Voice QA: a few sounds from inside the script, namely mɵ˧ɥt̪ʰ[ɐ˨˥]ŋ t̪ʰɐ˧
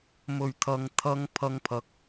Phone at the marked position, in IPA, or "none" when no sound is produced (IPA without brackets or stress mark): ɐ˧